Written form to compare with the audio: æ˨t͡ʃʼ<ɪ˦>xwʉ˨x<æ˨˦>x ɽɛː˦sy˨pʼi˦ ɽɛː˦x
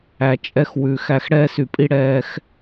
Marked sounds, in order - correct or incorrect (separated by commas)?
incorrect, incorrect